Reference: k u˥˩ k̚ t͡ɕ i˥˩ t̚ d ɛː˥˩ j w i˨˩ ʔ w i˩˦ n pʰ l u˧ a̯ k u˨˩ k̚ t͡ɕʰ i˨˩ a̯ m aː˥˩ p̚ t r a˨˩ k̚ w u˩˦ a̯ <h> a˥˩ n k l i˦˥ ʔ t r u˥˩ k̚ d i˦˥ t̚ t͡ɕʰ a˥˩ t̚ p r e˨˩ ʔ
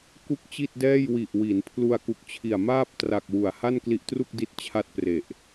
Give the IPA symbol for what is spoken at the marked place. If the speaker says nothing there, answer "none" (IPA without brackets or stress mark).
h